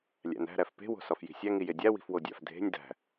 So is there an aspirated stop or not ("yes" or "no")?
no